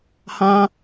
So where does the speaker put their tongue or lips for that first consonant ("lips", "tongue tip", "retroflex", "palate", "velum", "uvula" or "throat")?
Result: throat